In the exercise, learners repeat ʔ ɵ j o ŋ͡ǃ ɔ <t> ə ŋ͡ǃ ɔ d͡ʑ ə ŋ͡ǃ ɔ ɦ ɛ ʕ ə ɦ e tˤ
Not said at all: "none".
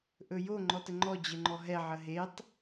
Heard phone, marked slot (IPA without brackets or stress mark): t